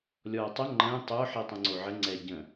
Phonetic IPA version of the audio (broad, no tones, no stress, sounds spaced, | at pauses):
lʲ ɔː tˤ ə ŋ͡ǃ ə̃ː tˤ o ħ i tˤ ə̃ ŋ͡ǀ o ʕ ə ŋ͡ǀ ɛ ɟ ə̃